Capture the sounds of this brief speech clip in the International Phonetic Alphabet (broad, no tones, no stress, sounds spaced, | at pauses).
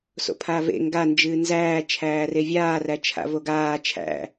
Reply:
s o̰ pʰ a v ḛ ŋ ɡ a n d͡ʒ ɨː n z æː t͡ʃʰ æː r e vʲ aː r æ t͡ʃʰ a̰ v o ɡ aː t͡ʃʰ æ̰